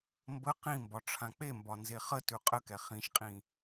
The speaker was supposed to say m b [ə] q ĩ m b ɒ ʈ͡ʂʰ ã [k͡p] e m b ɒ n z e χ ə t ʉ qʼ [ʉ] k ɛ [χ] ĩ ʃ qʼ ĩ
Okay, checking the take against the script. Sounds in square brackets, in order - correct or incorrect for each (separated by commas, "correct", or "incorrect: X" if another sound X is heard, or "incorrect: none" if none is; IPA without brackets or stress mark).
correct, correct, incorrect: ə, correct